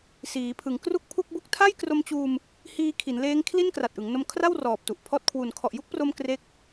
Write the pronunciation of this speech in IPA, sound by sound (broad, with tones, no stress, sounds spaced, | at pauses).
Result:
s iː˩˦ pʰ ɯ˩˦ ŋ k r u˥˩ k̚ pʰ u˥˩ k̚ b u˥˩ k̚ tʰ a˥˩ j k r o˧ m t͡ɕ uː˧ m | h iː˧ kʰ i˩˦ n l eː˦˥ ŋ kʰ l i˥˩ n k r a˨˩ t̚ ʔ ɯ˩˦ ŋ n o˧ m kʰ r a˥˩ w r ɔː˨˩ p̚ t u˨˩ ʔ pʰ ɔː˦˥ t̚ kʰ w u˨˩ n kʰ ɔ˨˩ ʔ j u˥˩ k̚ p r o˧ m k r e˦˥ k̚